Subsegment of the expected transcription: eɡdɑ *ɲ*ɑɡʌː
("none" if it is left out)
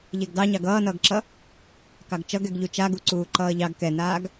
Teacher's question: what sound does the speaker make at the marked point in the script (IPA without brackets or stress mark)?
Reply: ɲ